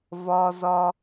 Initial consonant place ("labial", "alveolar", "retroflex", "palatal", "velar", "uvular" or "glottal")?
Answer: labial